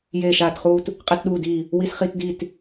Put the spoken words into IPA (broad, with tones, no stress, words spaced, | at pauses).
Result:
jeː˧˩ʃaː˧˩tχuː˧t | qʼe˧tɗuː˧˩diː˧˩ | wi˧sχi˧tdi˧˩t